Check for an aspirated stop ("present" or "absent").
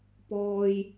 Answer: absent